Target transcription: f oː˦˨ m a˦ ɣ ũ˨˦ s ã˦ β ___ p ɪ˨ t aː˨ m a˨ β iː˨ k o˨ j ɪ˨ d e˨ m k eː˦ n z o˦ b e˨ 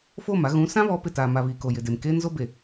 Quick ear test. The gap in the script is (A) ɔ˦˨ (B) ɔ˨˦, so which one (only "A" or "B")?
B